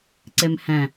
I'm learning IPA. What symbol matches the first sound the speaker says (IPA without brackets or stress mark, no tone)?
ǀ